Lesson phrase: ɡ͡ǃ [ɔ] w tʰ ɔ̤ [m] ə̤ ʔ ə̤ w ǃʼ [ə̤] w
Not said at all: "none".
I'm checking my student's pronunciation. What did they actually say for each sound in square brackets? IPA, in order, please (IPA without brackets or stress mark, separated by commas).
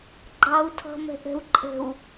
ɑ, m, ə̤